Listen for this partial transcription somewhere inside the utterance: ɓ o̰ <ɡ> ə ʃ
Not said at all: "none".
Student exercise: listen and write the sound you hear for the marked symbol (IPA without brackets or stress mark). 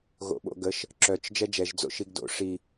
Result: ɡ